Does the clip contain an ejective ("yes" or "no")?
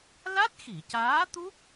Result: no